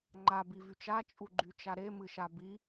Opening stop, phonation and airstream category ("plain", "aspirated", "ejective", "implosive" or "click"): click